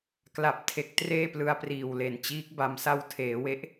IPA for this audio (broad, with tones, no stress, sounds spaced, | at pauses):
k l a˨˩ p̚ tʰ e˨˩ k̚ t r eː˥˩ p l ɯ˧ a̯ p r iː˨˩ w l e˨˩ n t͡ɕ iː˦˥ k̚ b a˧ m s a˧ w tʰ eː˩˦ w e˦˥ ʔ